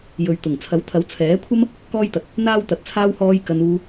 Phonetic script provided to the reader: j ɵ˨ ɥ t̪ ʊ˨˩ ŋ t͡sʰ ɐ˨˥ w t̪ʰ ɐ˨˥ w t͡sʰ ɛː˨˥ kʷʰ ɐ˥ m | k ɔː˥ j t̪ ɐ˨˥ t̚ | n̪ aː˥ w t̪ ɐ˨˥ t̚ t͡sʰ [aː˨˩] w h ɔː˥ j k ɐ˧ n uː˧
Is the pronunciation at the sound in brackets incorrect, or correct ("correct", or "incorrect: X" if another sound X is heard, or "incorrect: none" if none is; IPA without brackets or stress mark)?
incorrect: aː˥